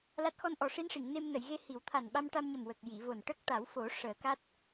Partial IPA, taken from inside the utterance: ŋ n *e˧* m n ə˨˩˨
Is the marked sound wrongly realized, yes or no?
no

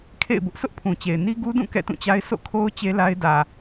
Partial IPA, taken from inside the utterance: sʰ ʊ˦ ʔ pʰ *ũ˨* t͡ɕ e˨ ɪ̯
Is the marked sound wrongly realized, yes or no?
no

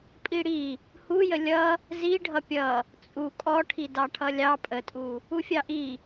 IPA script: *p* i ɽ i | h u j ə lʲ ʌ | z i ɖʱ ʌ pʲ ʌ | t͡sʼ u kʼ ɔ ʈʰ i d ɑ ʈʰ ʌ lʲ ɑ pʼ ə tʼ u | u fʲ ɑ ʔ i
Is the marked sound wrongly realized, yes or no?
yes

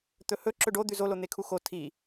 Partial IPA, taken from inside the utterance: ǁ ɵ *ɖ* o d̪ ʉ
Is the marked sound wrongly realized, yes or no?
no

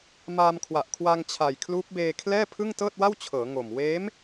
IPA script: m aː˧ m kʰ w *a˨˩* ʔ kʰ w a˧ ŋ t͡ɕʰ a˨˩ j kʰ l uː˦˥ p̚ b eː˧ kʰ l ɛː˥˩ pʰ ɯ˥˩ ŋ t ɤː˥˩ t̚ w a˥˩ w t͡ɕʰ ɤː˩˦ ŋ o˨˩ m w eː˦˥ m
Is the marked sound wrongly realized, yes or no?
no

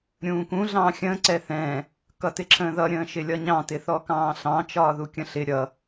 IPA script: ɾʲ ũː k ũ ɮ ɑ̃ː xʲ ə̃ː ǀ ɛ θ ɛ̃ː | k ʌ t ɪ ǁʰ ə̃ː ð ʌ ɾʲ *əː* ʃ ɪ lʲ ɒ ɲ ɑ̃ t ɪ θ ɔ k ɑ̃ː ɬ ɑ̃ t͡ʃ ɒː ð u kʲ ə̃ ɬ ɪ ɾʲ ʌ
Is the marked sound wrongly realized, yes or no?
yes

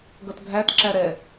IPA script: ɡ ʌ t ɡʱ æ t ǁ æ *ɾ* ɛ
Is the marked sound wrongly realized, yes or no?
no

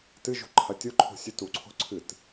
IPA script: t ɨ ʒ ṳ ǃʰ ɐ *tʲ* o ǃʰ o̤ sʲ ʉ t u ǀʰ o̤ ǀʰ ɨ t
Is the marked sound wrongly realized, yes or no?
no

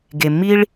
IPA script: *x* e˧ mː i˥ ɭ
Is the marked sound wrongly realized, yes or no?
yes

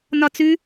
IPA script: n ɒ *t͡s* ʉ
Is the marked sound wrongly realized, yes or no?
no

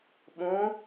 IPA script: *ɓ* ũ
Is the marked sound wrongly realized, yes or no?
no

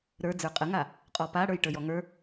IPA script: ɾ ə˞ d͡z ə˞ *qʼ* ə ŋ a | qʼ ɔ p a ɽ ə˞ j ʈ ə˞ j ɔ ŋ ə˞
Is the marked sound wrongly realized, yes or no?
no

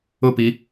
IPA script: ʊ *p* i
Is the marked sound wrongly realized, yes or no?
no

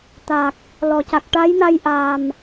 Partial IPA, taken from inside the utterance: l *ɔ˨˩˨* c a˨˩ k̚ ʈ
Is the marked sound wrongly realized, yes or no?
no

